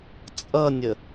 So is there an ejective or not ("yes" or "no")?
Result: yes